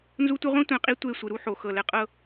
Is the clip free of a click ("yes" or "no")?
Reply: yes